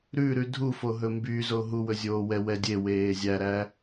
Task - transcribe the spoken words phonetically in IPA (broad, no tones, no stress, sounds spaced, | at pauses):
ɾ ʉ ɾ ʉ dʱ u f o ɦ ɵ m b y z o ɦ u w ɵ zʲ oː w ɛ w ɛ dʲ e w eː zʲ æ ɾ æ